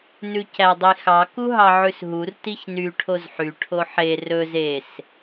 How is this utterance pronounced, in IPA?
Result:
n ʉ c æ dˤ i x ɑ k u ɦ ɑ ʕ ʉ s ɦ u r t i ç n y ʈʰ o z ħ y ʈʰ o ħ e r ɵ z e s

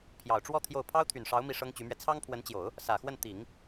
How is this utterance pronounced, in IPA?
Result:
pʰ j ɑ˨˩ ʊ̯ ʈ͡ʂ w ɔ˥˧ t̪ʰ j o˥˩ ʊ̯ pʰ ɑ˥ ʊ̯ t̪ʰ y˨˩ n ʂ ɑ˧˥ ʊ̯ m i˥˩ ʂ ɤ˥ ŋ t͡ɕ y˧˥ m ɥ ɛ˧ t͡sʰ ɑ˥ ŋ pʰ w ə˧˥ n t͡ɕ j o˨˩˦ ʊ̯ | s ä˨˩ x w ə˥˩ n t̪ i˨˩˦ ŋ

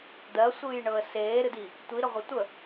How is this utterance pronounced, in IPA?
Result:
d̪ ɜ sʷ ɨː j ɳ ɤ ə̯ s eː ɾ ɨ d i | tʷ i ɾ ə ʁʷ ə tʷ ə

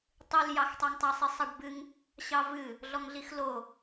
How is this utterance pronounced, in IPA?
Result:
tˤ ɨ l j ɑ x tˤ ɑ ŋ tˤ a sˤ i sˤ ʌ ɖ b ɨ ŋ | ɕ ɑ v ɨ | ɮ ɔ ŋ ɮ i x l o

